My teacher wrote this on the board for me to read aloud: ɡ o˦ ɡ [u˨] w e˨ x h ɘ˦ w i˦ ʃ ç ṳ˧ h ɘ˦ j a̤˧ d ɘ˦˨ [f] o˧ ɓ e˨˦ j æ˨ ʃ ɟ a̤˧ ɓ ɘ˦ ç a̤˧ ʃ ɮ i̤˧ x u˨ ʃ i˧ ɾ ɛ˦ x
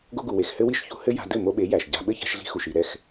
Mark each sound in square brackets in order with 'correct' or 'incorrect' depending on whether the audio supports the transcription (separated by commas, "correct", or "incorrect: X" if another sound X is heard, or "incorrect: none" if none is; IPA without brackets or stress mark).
correct, incorrect: m